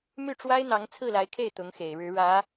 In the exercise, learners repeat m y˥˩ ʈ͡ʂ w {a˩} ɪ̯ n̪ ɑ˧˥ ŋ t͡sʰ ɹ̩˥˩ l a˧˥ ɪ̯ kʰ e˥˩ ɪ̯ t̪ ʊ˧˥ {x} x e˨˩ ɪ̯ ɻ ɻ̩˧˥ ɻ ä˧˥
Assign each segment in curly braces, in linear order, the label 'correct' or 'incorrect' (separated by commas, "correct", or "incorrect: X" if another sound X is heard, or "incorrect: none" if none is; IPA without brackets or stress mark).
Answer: incorrect: a˥, incorrect: ŋ